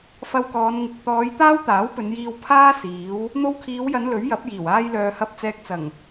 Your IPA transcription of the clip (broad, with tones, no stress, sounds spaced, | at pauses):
f ɐ˧ w k ɔː˨˧ n ŋ ɪ˨ k̚ t̪ ɔː˨˧ j t̪ aː˥ w t̪ aː˨˥ w p ɵ˨˧ n j iː˧ w pʰ aː˥ s iː˨˥ w | n̪ o˧ w kʰ iː˨˧ w j ɐ˨˧ n l ɵ˨˥ ɥ j ɐ˨˥ p̚ j iː˨˩ w aː˧ j l œː˨ h ɐ˧ p̚ t͡s ɛː˧ k̚ t͡s ɐ˨˩ ŋ